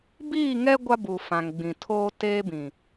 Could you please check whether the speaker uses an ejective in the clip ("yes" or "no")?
no